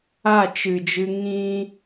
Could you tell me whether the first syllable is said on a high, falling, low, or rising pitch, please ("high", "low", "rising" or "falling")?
falling